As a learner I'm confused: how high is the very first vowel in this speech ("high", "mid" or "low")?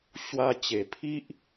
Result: low